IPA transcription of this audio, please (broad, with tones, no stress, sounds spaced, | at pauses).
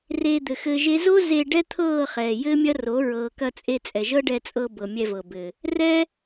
r eː˧ d̪ ɘ˨ x ɘː˧ ʒ e˦ z o˦ z e˧ ɖ ɛ˦ t̪ʰ ɤː˦˨ χ ɛː˨ j ɘː˦ mʲ ɐ˦ r o˨˦ ɹ ɤː˨ k ɐ˧ t͡sʼ e˧ t͡sʼ ɛ˨ ʒ ɤ˦ ɖ ɛ˧ t͡sʼ ɤ˧ b ɤ˨ mʲ ɛ˧ v ɤ˨ b ɘː˨ | r ɛː˦